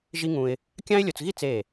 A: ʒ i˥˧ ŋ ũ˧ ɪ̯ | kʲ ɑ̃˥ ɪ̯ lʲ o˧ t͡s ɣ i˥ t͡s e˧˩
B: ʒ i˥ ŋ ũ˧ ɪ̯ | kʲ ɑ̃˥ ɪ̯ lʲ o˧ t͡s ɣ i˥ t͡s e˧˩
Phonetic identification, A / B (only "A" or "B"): B